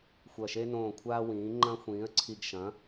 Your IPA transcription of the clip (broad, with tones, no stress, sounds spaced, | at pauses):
xʷ ɐ˨˩ ʃ e˧ n õː˨˩ kʷʰ aː˧ w ĩː˩˧ ŋ͡ǃ ɐ̃˧ xʷ ĩː˩˧ ə̯ ǀʰ i˨˩ ɡ ʃ ɐ̃˩˧